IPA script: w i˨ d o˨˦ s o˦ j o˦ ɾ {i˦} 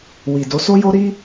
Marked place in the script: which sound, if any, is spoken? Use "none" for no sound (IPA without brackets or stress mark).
i˦